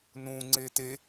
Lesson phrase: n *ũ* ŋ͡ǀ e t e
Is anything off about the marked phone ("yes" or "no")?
no